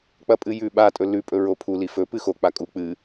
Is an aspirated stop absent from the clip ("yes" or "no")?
no